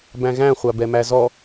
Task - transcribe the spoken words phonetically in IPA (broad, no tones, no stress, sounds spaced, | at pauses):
b æ̃ ɣ æ̃ χʷ a b ɛ m æ z ɔ